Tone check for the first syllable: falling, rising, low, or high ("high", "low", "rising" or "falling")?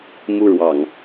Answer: high